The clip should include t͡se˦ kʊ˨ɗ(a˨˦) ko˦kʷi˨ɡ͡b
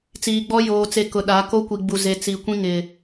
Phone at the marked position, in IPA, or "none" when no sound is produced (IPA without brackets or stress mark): a˨˦